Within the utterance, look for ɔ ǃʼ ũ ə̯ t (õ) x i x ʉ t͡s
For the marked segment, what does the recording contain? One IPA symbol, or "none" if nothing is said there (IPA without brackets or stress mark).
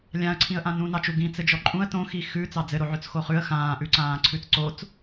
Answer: õ